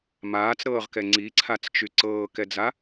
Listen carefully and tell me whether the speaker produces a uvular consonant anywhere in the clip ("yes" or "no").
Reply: yes